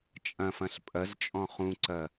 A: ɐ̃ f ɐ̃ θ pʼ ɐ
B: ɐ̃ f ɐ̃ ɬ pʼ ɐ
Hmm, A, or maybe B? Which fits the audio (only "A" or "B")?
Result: B